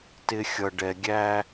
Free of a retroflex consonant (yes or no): no